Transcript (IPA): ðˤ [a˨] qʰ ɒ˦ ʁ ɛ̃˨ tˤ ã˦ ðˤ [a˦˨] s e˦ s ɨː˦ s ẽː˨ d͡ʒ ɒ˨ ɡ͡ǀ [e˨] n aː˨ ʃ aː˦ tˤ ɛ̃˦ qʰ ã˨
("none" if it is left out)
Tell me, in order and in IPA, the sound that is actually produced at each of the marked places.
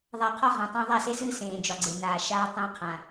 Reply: a˨, a˦˨, e˨

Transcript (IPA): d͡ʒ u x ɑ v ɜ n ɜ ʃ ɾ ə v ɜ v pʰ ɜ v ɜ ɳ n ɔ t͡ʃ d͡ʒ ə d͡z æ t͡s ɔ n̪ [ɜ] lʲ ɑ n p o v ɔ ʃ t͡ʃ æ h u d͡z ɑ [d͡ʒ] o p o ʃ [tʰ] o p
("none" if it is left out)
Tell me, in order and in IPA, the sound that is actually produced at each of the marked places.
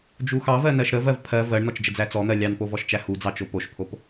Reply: ɜ, t͡ʃ, pʰ

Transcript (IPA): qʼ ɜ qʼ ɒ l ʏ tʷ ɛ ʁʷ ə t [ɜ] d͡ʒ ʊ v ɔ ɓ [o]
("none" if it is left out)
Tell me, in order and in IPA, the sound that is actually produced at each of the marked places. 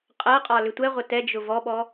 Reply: ɛ, ɔ

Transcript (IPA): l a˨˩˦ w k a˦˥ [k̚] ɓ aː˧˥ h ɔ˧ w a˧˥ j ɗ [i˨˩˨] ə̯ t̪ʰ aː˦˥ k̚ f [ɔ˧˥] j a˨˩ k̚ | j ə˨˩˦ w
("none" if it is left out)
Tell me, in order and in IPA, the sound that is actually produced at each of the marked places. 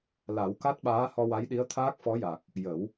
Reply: t̚, i˧˥, ɔ˧˥

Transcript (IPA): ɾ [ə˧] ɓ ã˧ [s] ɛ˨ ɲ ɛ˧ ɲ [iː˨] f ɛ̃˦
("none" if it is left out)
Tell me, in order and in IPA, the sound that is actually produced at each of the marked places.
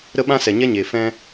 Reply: ə˦, s, eː˨

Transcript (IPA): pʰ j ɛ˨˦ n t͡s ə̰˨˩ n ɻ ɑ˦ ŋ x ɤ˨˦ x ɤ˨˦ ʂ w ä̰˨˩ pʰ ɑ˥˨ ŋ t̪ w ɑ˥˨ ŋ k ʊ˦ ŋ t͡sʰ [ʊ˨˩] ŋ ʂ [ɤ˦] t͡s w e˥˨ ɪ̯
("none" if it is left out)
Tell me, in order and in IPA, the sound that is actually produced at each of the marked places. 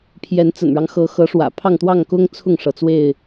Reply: ʊ˥˨, ɤ˩

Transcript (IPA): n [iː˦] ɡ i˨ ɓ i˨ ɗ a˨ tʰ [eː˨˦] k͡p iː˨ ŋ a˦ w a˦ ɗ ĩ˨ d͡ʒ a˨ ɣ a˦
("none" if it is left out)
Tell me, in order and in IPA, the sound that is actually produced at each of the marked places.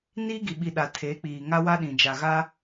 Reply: iː˦, eː˨˦

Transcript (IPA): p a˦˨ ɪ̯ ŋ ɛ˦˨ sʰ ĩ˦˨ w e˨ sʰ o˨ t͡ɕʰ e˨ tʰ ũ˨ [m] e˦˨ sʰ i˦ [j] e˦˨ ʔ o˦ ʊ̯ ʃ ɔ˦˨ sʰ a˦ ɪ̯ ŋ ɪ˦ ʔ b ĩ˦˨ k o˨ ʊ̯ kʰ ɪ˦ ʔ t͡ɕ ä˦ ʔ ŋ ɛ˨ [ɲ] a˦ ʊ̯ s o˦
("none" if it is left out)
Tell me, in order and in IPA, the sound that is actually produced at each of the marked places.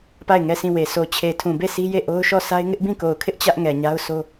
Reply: b, j, ɲ

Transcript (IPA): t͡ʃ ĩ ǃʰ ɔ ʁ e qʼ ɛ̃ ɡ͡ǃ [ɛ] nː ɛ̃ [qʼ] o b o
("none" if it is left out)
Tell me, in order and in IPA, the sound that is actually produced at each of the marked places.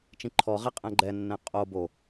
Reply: ɛ, qʼ

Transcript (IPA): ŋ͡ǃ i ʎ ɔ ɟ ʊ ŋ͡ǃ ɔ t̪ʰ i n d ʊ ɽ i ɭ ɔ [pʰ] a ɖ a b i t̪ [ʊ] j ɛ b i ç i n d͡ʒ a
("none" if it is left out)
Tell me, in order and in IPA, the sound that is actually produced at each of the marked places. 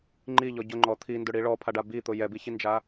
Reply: pʰ, ʊ

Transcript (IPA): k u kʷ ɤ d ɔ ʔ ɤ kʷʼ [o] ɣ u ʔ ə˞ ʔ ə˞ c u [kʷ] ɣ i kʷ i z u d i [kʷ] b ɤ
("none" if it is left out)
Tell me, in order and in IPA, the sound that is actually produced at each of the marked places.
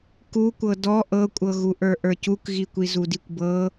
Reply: ɤ, k, kʷ

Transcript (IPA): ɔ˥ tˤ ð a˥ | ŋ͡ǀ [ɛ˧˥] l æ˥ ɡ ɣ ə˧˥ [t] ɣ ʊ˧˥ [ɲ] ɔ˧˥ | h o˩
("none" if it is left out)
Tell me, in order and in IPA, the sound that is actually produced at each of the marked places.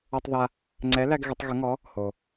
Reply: ɛ˧˥, tˤ, ŋ

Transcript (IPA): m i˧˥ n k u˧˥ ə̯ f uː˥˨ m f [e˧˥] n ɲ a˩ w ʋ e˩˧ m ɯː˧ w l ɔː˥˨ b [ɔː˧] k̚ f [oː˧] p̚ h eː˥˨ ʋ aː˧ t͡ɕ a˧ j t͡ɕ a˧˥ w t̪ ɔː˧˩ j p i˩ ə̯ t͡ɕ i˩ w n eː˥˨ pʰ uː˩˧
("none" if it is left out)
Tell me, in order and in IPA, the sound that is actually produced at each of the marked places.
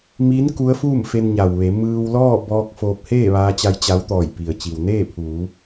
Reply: e˧, ɔː˧, oː˧

